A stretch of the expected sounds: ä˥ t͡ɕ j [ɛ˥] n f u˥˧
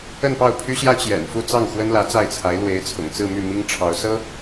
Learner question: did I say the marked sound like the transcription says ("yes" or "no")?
no